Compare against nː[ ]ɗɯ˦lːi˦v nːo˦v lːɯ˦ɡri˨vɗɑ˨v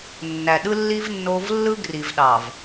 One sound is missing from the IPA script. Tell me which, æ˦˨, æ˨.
æ˨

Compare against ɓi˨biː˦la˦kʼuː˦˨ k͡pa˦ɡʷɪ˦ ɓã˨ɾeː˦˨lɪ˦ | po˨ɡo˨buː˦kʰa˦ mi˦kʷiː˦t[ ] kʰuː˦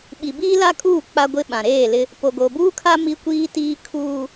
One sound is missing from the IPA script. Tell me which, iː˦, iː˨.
iː˦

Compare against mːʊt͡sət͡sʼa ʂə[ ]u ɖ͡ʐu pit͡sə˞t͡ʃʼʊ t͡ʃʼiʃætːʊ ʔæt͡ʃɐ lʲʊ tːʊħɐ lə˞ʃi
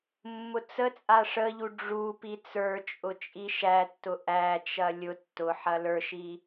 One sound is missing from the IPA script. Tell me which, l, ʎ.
ʎ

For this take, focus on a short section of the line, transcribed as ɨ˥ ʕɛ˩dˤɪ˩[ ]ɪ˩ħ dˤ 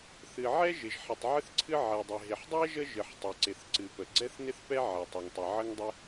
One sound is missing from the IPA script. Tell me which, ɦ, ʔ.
ɦ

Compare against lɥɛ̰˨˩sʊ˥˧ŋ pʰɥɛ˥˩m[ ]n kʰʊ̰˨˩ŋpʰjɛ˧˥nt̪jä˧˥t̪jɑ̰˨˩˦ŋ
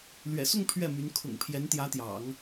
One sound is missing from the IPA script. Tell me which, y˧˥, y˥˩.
y˧˥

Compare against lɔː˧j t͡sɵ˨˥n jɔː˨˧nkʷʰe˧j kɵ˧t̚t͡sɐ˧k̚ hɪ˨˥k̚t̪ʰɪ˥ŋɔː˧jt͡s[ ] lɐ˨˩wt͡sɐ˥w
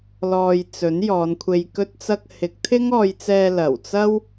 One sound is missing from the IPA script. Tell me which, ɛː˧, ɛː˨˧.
ɛː˧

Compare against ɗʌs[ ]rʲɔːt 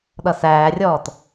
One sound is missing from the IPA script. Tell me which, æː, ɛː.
æː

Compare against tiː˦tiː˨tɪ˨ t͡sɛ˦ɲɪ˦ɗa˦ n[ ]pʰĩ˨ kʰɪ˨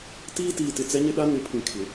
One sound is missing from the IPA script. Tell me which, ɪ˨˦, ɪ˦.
ɪ˨˦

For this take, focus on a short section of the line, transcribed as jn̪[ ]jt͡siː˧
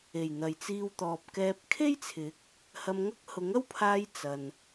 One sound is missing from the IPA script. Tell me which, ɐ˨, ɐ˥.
ɐ˨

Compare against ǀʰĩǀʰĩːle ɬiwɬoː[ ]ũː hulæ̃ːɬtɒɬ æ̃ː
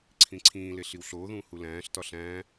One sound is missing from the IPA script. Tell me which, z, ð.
ð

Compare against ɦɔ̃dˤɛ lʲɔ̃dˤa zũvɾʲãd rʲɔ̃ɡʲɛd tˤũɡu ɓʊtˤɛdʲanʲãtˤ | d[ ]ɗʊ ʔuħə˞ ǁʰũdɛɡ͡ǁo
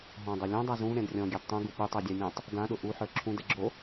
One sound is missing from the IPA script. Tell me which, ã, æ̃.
ã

